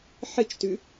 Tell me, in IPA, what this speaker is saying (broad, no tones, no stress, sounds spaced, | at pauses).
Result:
ħ ɨ t͡ʃ t ʉ